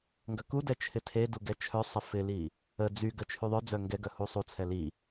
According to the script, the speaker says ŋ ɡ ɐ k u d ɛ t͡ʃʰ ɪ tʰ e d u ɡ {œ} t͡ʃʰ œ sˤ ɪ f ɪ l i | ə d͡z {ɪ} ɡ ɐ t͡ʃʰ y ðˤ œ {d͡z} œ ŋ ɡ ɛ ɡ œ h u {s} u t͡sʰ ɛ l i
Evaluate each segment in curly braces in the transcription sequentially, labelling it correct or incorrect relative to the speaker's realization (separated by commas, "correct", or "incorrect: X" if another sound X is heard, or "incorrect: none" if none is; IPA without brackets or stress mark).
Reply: incorrect: ɛ, incorrect: y, correct, incorrect: sˤ